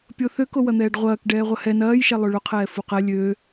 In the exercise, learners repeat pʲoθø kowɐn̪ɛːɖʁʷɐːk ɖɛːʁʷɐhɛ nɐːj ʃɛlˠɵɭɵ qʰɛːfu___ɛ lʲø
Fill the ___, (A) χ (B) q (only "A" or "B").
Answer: B